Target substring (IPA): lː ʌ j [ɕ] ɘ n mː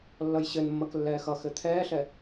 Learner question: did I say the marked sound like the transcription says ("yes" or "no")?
yes